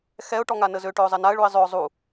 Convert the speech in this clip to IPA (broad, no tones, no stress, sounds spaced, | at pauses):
x ɛ ʊ̯ ʈ ɔ ŋ a n ə z ø ʈ ø ʊ̯ zˤ ɛ n a ə̯ ɭ u ɪ̯ zˤ ø ʊ̯ zˤ u